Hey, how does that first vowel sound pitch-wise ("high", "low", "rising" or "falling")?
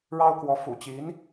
high